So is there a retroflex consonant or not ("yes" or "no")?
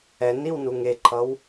no